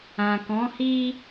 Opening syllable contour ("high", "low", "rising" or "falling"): low